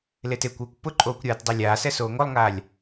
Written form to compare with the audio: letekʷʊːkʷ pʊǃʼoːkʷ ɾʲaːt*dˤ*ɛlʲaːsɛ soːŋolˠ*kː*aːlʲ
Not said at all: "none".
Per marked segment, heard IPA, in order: dˤ, ŋ

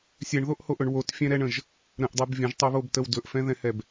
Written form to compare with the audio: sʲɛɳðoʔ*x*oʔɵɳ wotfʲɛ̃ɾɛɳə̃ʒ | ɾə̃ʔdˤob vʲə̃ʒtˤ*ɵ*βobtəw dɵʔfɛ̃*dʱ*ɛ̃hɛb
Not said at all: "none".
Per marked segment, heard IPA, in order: h, o, ð

